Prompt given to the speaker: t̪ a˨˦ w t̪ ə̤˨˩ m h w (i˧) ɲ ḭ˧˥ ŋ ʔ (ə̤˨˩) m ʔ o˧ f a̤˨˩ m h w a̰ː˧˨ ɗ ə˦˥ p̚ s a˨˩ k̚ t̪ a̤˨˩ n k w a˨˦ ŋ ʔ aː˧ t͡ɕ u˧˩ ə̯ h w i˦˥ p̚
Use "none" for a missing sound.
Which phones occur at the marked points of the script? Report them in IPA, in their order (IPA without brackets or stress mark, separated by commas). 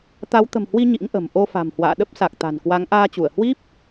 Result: i˧, ə̤˨˩